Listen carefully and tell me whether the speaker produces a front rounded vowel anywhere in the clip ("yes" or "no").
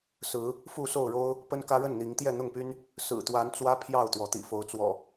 yes